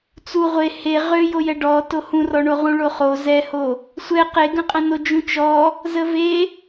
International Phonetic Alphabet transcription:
t͡su ʁʷe he ʁø jojɛɖɔ tohũrɔɳo ʁũɭoχo zɛho | sʷɛ qeɡə̃qʼə̃no d͡ʒũt͡ʃɔ | zəve

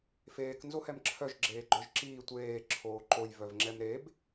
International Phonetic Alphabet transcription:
feːk nzohɛmǁʰœʒ ɡ͡ǁeːɡ͡ǃœʒǁiː tʷeː ǁʰoːǃoj vœvŋ͡ǁɛmɾeb

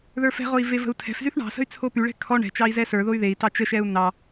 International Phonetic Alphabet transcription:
ðə˞fɛ̤ʁoi̯ vevə̤u̯tʰɛ̤fzyθ ɳɑ̤sə̤y̯ t͡sʰopyɭɛ̤ kʰɔ ɳɛ̤t͡ʃɑi̯ zɛsə˞ðoy̯ ðei̯tɑ t͡ʃəʃɛu̯ nɑ

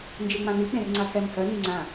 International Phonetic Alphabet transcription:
nd͡ʒeŋ͡mãni k͡pẽrŋ͡ǀatʰɛmhœ niŋ͡ǀã

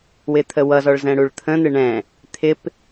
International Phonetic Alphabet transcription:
wɪt̪ʰəwʌzɔɭ zɛ̃ɽuɭt̪ʰə̃n̪ɪ ɳɛ̃ | t̪ʰɪp

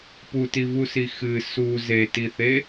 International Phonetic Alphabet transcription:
putivusi xɨ su zetiθe

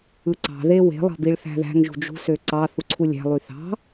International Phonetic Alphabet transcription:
ɯǀɑ̤ ðewe̤ lˠɑ̤biɭθæ̤ðæ̤ŋ ʒṳd͡ʒṳ søǀɑ θuǀʰulʲæ̤ lˠyθɑ̤

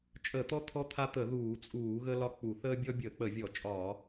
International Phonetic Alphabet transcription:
t͡ʃʼə˧˩˧t̪ɔ˦ t̪ʰɔ˦t̪ʰa˦t̪ə˧˩˧ ðuː˧˩˧t͡sʼuː˧˩˧ɣə˦ lɒ˦ k͡pu˧˩˧ θəː˦bʲɔ˦bʲəː˧˩˧k͡pə˧˩˧ vʲɔ˧˩˧ t͡ʃʼɒː˧˩˧

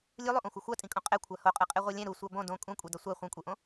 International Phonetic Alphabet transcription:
lʲulˠuʔõxʷʌ xʷatʼĩkʼõ qʼɛ kʷʰahoqʼɯqʼe ʁʷʌlʲɛ̃ ɾusʷa bõ dõ kʼũkʷʼe dʌsʷa χʷẽkʷʼeʔõ

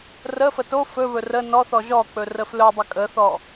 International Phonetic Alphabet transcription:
rəfə to fɵvɵ rə nɔθɔ ʒɔk͡pɵ rəflɵdˤə kʼəθɔ

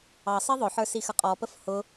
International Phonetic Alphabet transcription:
ɑsˤi ðˤʊħə˞sixə qʼɔpəf hʊ

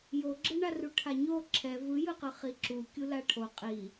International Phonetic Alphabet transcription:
joɡ͡ǁɯɳaru ʈʰaɲo ǁʰɛ vɯjɯqɯ χiǁukʲu laʈʰo qʼi

